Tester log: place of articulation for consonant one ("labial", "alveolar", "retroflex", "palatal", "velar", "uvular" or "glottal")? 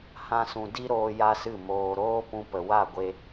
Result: glottal